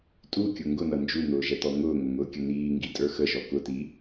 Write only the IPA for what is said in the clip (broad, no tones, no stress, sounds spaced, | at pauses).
tʼ u kʲ ʊ ŋ ɡ ʊ n ʌ n d͡ʒ u n̪ ʊː ʒ ɛ t̪ ɔ ŋ ʊː ŋ ʊ ŋ ʊː kʲ ə n iː ŋ ɡ i tʼ ə˞ x ə ʒ ɔ k ʊ t i